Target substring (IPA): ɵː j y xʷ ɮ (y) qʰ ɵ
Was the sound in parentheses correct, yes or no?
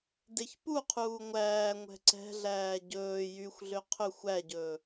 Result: no